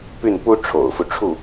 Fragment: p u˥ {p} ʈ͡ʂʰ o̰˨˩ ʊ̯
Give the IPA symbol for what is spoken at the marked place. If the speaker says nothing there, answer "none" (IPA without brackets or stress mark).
none